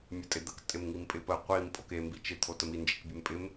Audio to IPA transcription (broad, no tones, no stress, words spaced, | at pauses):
mʲətʼɪd̪ək tʼɪmŋimpʼɪpə qʷim pʼoke mbit͡ʃɪ t̪ʰotəmi nd͡ʒikbʲempʼɪm